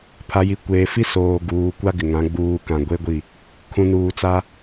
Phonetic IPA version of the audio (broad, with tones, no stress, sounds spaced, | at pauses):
pʰ a˨ j i˨ kʷ eː˨ f i˦ s oː˨ ɡ uː˨ kʷ a˦ ɡ ɪ˨ ŋ ã˨˦ ɡ͡b uː˨ k ã˨ ɡʷ e˦ ɡʷ i˦˨ | kʰ ũ˨ n uː˨ t͡s a˦